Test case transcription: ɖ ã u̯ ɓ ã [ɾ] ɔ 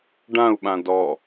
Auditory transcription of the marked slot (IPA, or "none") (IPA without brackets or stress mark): d